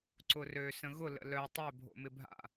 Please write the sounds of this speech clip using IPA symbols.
ǀ ʊ r ø s ə̃ ɣ ʊ l ə̰ l œ tˤ ø bʱ o̰ m ɪ bʱ a̰

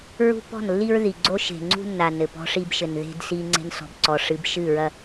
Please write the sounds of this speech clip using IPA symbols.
ɹ ṳ˦ p ɔ̤˦˨ n lː i˦ ɹ ð i˨ ɡ͡ǀ o˦ ʃ e̤˨ ŋ͡ǀ ṳ˦ nː a˨ n ɘ˨ p ɔ̤˦ ʂ i˦ b ʃ ɘ˨ n ð e̤˦ d s i˦ ŋ͡ǀ e̤˦ n s ɔ̤˨ b ǀ ɔ˨ ʂ ɨ˨˦ b ʃ ɨ˦˨ ɹ ɐ˦

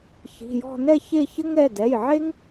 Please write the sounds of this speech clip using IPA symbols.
ç i̤˩˧˩ j ɔ̤˥˧ n ɛ˥˧ ç e˥˧ ç ɘ˥ ŋ ɾ ɛ˩˧˩ d ɛ˩˧˩ j ʕ e˥ ŋ

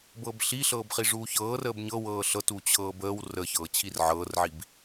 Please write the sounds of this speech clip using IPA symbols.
b ɤ b ɬ i ɬ ɤː b χ i ʐ uː ç ɤː r əː b ɲ ɤ w ɤː ɬ ɤ t u t͡ɕʰ ɤː b əː w r ə ç ɤː t͡ɕʰ i r ʕ ɤː r ʕ i b

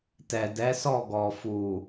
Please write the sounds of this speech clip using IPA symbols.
t ɛ˨ d ɛ˨˦ s ɔ˦˨ ɡ ɔ˨ f u˨

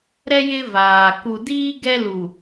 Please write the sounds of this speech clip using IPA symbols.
ɾ ɛ˦ j ɪ˦ v aː˨ k u˨ d iː˦ ɡ ɛ˦ l u˨

